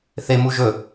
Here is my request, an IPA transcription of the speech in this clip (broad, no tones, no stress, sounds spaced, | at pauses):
θ e m u ʒ ɵ